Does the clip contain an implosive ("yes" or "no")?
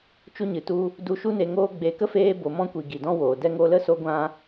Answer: no